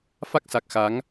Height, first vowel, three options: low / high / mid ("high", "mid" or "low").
low